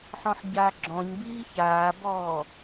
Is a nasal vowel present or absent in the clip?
present